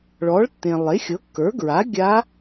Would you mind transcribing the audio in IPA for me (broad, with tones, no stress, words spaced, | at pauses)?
ɭɔ˩˥ɭtːẽ˩ lˠe˩˥xʲɤ˩˥kːə˞˩˥ɡɹa˩˥ ɡʲa˧˥